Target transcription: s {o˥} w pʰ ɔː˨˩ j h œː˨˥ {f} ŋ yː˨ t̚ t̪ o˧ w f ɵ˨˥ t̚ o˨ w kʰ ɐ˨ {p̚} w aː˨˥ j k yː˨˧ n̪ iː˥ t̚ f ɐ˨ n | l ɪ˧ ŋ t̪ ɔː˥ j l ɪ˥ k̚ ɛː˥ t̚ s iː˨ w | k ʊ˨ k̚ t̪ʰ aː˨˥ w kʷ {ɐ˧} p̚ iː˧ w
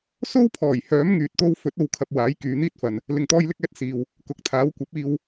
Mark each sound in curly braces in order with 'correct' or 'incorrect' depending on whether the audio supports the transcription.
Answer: correct, incorrect: m, correct, incorrect: ɐ˨˥

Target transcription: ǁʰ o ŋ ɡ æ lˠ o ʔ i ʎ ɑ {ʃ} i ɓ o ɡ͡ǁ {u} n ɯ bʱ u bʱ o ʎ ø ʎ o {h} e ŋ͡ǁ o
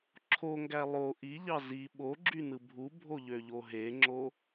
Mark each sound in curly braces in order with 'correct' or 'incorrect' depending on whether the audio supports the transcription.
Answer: incorrect: z, incorrect: y, incorrect: ɦ

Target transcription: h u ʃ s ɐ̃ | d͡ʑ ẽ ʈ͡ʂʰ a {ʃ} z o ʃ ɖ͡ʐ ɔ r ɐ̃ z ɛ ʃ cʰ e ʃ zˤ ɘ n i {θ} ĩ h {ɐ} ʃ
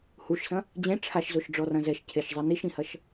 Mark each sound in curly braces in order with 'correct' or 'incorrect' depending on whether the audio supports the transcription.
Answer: correct, incorrect: ʃ, correct

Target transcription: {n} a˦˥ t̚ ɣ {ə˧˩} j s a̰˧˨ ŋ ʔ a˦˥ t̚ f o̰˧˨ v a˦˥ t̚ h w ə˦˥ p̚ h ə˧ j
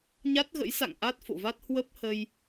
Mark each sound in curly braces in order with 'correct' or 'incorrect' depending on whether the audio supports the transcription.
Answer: incorrect: ɲ, incorrect: ə̰˧˥

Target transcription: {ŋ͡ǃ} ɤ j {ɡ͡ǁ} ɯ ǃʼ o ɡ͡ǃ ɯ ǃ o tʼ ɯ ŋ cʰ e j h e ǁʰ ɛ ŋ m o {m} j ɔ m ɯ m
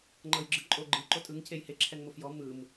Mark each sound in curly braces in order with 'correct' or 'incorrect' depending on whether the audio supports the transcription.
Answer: correct, correct, incorrect: f

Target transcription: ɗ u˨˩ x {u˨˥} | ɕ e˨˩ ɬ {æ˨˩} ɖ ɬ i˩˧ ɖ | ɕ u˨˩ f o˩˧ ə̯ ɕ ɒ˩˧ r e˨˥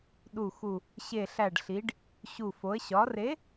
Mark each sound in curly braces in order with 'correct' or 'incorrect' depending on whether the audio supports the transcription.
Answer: incorrect: u˨˩, correct

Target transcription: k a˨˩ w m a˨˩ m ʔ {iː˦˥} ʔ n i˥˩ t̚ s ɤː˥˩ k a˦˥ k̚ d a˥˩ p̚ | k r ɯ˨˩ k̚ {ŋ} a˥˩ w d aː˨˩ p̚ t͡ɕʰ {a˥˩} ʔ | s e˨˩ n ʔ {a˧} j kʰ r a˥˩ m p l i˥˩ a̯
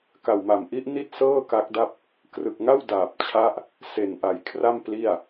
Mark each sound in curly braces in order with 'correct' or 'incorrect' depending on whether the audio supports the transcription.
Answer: incorrect: i˦˥, correct, incorrect: a˦˥, incorrect: a˩˦

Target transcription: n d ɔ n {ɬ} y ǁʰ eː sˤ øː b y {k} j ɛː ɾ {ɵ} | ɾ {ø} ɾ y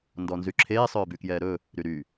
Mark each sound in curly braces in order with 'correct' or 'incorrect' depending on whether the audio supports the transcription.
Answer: incorrect: z, correct, correct, incorrect: y

